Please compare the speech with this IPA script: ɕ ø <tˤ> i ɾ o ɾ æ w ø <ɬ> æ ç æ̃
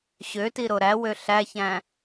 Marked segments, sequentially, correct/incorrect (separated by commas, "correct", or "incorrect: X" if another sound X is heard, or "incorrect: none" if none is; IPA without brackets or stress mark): incorrect: t, correct